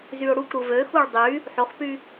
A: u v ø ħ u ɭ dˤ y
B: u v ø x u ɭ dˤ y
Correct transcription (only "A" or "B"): B